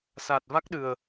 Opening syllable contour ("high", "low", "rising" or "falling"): low